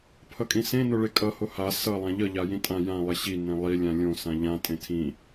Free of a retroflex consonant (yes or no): no